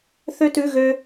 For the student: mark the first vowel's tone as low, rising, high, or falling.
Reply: high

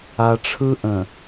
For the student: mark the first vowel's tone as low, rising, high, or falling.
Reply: low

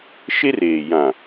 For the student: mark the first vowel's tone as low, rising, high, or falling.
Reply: high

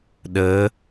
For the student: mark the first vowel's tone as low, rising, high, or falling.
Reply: rising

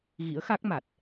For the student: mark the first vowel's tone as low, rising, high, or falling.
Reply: rising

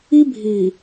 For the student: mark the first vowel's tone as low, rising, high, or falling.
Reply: high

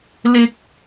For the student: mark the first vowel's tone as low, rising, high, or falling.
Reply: high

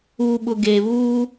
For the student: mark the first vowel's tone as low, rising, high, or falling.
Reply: low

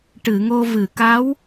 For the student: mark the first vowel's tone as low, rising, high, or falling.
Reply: low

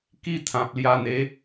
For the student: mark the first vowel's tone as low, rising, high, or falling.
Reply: high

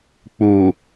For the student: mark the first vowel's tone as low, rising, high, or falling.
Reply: low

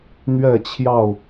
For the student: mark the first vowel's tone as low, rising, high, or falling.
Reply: falling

